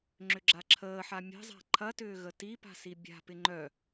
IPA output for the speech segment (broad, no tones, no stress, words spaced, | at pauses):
ŋ͡ǁʏɡ͡ǁaǁʰəːħa mʲə̤zˤa̤ ǃʰɐtʏː ɣətipa̤ sibʲa̤pɪ ŋ͡ǃœ